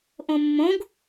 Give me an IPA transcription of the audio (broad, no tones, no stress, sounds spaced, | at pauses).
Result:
ʔ õ mː õ ɡ